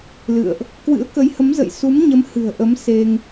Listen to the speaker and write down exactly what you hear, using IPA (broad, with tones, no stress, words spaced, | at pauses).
lɨ̰˧˨ə̯ʔ | kwɨ̰˧˥ə̯kə˨˦jhə˨˦mzə̰˧˨j su˨˦mɲə˨˦m hɨ̤˨˩ə̯ʔə˨˦m se˧ŋ